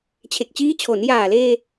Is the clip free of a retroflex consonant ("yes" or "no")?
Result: yes